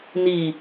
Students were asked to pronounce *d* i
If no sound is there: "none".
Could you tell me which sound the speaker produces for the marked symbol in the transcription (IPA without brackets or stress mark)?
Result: n